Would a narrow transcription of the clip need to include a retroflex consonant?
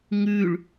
yes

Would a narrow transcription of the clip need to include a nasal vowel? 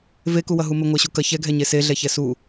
no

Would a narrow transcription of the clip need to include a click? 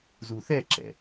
yes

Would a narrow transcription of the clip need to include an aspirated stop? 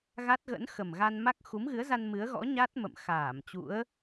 no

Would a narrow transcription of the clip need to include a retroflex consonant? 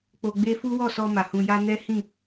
no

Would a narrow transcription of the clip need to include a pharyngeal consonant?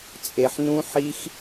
yes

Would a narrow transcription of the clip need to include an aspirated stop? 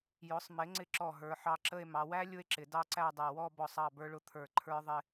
yes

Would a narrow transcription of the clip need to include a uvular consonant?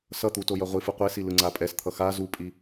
yes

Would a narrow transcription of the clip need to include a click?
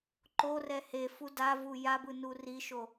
yes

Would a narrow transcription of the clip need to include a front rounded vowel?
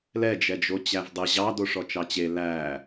no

